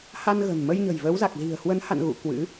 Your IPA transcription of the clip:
h a˧ n ɣ ə̤˨˩ n m ə˧ j ɲ ə̤˨˩ j v ə˨˦ w z a˨˩ k̚ z i̤˨˩ ə̯ h w ə˨˦ n h a̰˧˨ n ɣ ṵ˧˨ k w ɨ̰˧˥

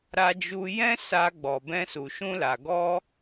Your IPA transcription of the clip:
ɾ a˧ d͡ʒ u˧ j ɛ̃˦ s a˧ ɡ͡b ɔ˨ b ɛ̃˧ s u˨ ʃ ũ˧ l a˨ ɡ ɔ˧

